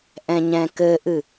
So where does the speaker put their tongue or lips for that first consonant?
throat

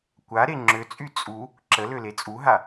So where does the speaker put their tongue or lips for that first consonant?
velum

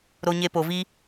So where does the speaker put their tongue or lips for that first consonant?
tongue tip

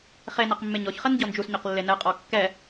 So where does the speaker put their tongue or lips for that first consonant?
uvula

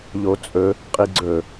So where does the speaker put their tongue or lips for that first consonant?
palate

